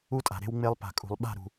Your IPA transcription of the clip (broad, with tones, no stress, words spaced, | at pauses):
u˦tʼa̤˨ ɾe̤˦wŋ͡me˦lˠ pa̤˨kʼṳ˨lˠ ɓa̤˦˨ɾṳ˨